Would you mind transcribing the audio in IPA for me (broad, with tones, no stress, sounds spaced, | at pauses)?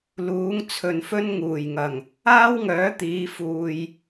l uː˨˥ ŋ t͡sʰ ɵ˨ n f ɵ˥ n ŋ uː˨˩ j ŋ ɐ˨˩ ŋ | aː˥ w ŋ œː˨˥ t̪ iː˨˧ f uː˨ j